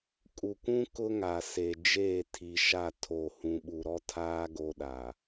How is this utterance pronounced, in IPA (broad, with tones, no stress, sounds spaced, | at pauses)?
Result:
kʼ u˨ kʷ ũ˦ k ʊ˦ ŋ a˨ s e˨ d͡ʒ eː˦˨ tʰ i˨ ʃ a˦˨ tʰ o˦˨ h ũ˦ ɓ u˦ ɾ ɔ˦ tʰ aː˦ ɡ o˦ ɗ a˨